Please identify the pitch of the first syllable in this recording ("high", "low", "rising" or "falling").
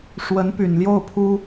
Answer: rising